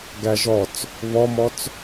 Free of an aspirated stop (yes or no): yes